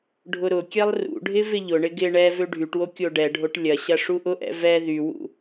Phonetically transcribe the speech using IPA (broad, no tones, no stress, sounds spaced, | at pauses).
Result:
ɖʱ ʊ ɾ ʊ kʲ ɛ lˠ r ṵ ɖʱ ɪ v ɪ ʎ ʊ ɳ ɪ ɡ ɪ ɳ ɛ v ø ɖʱ y ʈ w o kʲ o ɖ ɛ ɖʱ o ʈ lʲ ɐ ɕ ɐ ʂ u ʔ ʊ ʔ ɛ̰ v ɛ ð y w ṵ